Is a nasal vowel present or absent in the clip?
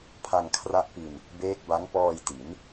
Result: absent